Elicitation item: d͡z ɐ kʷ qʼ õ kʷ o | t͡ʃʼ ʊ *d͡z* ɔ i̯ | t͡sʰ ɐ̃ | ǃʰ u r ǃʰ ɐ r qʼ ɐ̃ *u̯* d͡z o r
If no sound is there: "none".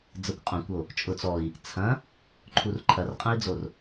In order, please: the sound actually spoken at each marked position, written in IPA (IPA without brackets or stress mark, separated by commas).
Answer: t͡s, i̯